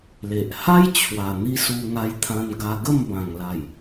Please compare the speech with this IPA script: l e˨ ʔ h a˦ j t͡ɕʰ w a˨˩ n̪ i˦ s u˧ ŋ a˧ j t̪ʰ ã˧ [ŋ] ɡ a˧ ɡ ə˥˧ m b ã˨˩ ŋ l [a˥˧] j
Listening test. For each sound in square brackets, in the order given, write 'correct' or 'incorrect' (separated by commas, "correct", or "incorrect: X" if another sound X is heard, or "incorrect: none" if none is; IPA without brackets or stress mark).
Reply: incorrect: n, incorrect: a˨˩